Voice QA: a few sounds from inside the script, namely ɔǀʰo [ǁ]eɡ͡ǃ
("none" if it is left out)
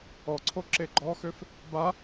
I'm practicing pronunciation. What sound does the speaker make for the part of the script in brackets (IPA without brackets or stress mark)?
ǁ